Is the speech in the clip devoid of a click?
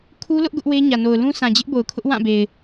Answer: yes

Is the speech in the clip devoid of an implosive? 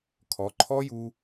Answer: yes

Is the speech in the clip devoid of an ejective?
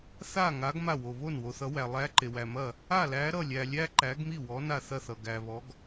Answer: yes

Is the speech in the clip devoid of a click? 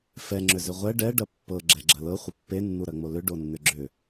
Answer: no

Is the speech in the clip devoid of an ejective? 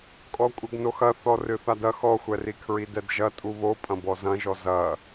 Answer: no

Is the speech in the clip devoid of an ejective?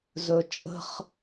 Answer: no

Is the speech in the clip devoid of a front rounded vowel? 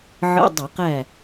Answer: yes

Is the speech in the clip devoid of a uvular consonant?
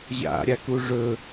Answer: yes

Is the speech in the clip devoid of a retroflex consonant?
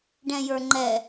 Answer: no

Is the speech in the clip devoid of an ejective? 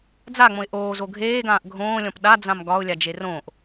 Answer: yes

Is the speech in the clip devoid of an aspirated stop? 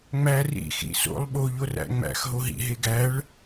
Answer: yes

